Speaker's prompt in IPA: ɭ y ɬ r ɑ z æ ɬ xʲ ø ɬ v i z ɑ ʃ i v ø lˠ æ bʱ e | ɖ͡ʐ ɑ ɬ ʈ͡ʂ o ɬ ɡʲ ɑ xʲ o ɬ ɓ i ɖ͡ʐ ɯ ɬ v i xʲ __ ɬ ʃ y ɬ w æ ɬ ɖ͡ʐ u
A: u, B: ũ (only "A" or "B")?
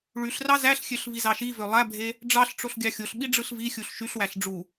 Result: A